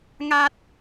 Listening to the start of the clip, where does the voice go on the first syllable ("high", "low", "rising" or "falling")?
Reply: high